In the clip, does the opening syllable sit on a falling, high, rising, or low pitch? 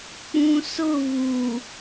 low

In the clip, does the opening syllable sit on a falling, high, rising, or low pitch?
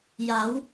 rising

